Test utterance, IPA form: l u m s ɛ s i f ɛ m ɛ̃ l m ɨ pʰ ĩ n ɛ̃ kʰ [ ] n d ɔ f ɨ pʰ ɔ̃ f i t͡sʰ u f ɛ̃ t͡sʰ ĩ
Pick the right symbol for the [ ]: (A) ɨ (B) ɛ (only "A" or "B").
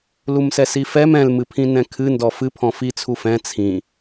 A